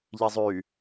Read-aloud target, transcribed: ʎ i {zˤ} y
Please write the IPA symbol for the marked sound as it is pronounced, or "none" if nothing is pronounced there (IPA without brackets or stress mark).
zˤ